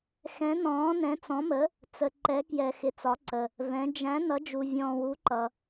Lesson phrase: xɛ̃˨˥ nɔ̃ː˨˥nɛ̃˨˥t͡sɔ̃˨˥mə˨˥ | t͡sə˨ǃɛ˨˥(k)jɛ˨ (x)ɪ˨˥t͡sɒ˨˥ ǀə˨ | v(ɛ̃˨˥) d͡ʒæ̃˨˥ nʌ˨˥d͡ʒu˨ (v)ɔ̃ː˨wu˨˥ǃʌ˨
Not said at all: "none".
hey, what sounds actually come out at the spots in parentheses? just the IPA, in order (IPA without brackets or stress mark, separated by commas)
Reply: k, x, ɛ̃˨˥, vʲ